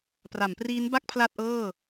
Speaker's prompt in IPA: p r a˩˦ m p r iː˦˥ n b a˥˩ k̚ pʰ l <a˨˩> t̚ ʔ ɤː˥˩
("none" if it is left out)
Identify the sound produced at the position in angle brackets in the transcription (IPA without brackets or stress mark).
a˥˩